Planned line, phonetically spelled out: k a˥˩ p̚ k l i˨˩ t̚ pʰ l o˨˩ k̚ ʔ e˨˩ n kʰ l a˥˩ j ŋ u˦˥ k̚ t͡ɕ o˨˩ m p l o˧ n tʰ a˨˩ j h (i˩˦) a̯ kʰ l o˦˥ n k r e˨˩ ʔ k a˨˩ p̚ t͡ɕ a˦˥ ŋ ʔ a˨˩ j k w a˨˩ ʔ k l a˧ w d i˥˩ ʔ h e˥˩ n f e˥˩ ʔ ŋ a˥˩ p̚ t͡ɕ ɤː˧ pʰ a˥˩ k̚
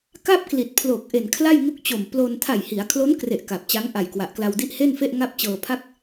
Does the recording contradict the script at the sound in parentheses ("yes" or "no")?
no